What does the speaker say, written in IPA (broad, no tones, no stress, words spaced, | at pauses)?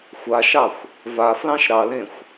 xʷaʃɑxʷ | va flɑ̃ʃɾɑlẽxʷ